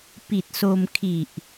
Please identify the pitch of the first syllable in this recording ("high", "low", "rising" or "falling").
low